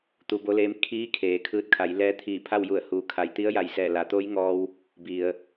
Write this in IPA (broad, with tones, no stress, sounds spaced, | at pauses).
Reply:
t̪ u˧ b o˧˥ l eː˧˥ m kʰ iː˧˥ kʰ eː˩ kʰ ɯː˧ t̚ kʰ a˩˧ j l ɛː˧˥ t̪ʰ iː˧˩ pʰ a˥˨ w j u˧˩ ə̯ h uː˩˧ kʰ a˩ j t̪ i˧˥ ə̯ j a˧˩ j s ɛː˧˩ l a˩˧ t̪ o˧˥ j ŋ ɔː˧ w | b i˩ ə̯